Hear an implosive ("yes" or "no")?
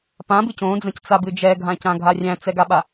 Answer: yes